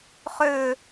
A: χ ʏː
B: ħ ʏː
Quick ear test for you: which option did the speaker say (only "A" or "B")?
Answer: A